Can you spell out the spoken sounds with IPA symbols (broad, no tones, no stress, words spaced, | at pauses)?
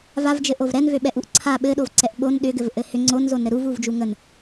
vavd͡ʒɘ ʔovɾɛnvø ɓɛʔuʔǀʰa ɓɘɗovǀɛʔ ɓon ɗʏ ɡɘvʔɘhʏ ŋ͡ǀonzonɾɘ ɾuv uvd͡ʒuŋən